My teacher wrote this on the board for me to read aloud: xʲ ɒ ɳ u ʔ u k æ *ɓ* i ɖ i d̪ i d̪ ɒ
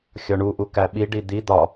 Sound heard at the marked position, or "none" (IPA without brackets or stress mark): ɓ